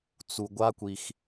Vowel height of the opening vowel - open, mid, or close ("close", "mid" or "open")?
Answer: close